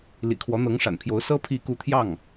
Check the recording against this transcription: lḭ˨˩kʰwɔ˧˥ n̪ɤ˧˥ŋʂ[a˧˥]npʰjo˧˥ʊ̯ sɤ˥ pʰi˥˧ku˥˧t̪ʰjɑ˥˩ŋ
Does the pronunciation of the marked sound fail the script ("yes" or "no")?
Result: yes